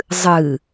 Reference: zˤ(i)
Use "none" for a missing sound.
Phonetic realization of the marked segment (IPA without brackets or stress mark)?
ɨ